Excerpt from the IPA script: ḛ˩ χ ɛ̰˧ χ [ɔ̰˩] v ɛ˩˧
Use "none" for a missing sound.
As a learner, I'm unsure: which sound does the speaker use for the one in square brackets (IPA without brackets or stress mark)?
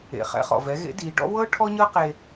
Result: ɔ̰˩